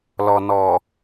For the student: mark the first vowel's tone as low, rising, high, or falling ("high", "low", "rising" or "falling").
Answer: low